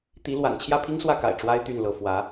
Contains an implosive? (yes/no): no